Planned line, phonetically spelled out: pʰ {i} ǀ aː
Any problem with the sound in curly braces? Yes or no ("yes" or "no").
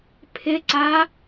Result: yes